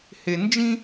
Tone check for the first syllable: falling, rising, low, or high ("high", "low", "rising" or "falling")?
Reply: low